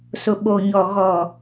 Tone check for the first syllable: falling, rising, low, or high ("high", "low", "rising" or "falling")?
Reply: low